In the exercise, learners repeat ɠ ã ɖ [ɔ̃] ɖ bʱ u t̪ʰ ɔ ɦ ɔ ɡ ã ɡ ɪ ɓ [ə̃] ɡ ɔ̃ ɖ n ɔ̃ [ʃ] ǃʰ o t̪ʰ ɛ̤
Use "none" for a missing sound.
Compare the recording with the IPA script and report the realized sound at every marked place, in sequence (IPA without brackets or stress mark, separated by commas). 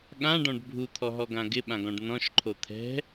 ɔ̃, ã, ʃ